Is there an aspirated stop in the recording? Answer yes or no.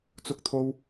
yes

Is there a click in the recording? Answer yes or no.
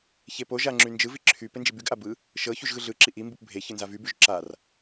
yes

